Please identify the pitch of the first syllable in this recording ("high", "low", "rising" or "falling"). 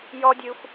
high